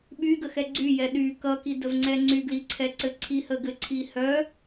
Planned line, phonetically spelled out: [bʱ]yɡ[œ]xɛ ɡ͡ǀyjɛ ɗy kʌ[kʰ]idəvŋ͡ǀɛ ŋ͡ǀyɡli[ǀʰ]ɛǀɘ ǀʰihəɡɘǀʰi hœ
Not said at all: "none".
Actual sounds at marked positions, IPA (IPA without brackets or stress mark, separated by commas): ɓ, ə, k, ǀʰ